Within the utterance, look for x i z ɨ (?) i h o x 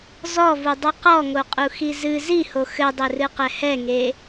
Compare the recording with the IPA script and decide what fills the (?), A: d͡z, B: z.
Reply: B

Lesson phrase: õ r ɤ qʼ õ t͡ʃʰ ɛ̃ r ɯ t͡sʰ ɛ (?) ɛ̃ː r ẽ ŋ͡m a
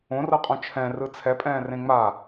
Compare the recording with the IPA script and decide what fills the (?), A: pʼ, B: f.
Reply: A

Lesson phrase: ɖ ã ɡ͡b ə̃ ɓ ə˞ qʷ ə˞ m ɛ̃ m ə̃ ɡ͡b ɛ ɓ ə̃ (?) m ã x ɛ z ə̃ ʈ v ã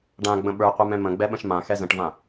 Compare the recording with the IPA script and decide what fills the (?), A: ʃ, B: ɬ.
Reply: A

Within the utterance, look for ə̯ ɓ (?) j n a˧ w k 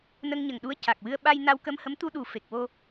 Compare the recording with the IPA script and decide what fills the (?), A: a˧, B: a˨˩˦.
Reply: A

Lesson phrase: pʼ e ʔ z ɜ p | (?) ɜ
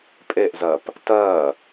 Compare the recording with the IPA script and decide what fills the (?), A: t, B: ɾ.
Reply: A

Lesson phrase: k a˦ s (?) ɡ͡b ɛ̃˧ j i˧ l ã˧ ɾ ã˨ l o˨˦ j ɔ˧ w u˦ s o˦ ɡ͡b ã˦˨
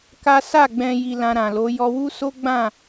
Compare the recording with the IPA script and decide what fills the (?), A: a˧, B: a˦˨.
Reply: B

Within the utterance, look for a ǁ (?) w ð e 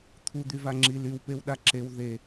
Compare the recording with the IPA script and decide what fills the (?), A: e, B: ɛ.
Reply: A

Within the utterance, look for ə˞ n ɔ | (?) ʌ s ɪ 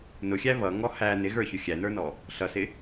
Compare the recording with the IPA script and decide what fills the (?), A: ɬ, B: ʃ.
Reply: A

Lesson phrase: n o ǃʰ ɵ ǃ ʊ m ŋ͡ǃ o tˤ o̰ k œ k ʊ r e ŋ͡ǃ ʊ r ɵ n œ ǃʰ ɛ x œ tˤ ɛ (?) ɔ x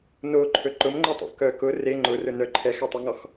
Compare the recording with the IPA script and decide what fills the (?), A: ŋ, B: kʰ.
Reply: A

